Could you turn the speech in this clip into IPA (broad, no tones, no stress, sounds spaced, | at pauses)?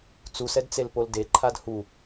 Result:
t͡s u s ɛ d t͡s e l p o l d e ǃʰ a d h u